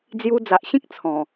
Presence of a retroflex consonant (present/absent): absent